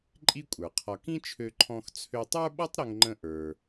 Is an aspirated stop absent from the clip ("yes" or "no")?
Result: no